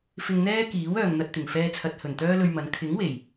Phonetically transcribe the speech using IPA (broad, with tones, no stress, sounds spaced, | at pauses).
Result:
f ɪ˧ ŋ n̪ ɛː˥ k iː˨˥ w œː˨ ŋ n̪ ɐ˧ t̚ t̪ ɪ˨˩ ŋ f ɛː˧ t͡sʰ ɐ˨ t̚ h ɵ˨˩ n t̪ œː˥ l ɵ˧ ɥ m ɐ˨˧ n kʰ ɪ˨˥ ŋ w e˨˩ j